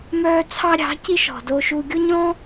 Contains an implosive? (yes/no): no